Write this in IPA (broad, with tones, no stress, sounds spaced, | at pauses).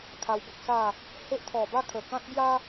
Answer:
kʰ a˧ w b ə˦ k̚ s a˥˧ | h e˦ ʔ t̪ʰ ɔ˨˩ b a˥˧ kʰ ə˨˩ k ã˦ t̚ b j a˦